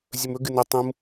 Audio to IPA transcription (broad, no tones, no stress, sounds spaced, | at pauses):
zʲ ɵ m ɵ ɡ ɨ n ɵ tˤ ũ m